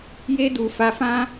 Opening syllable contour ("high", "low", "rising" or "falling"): high